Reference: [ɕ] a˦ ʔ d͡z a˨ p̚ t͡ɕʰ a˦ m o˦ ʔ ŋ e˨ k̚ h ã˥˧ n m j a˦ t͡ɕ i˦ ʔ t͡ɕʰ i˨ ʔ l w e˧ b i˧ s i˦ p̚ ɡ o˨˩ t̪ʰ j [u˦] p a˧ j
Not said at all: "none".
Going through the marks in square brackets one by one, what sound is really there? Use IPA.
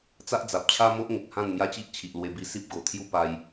t͡s, u˦

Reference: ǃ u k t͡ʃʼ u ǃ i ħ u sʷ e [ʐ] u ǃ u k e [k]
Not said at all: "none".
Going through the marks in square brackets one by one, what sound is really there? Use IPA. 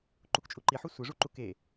ʐ, none

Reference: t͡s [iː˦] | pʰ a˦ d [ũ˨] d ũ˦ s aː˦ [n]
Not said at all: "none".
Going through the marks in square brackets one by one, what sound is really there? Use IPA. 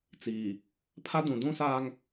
iː˨, ũ˨, ŋ

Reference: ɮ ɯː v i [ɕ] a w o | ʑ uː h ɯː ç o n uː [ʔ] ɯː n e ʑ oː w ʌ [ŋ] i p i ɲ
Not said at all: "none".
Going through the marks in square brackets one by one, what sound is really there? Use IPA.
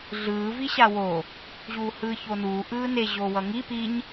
ɕ, ʔ, ŋ

